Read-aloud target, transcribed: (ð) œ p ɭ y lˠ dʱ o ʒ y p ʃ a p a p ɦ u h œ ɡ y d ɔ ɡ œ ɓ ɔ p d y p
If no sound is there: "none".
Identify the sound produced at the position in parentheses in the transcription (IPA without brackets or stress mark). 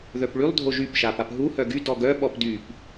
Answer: ð